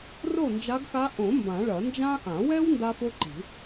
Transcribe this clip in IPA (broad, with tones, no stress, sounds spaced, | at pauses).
r o˥˩ n d͡ʒ a˧˥ ɡ x a˧˥ ʔ õ˨˩˦ m b ã˨˩˦ ɭ ɐ˨˩˦ n d͡ʒ ã˥ ʔ ã˨˩˦ w ɛ˥ w n d a˥ f o˥ ǃ i̤˨˩˦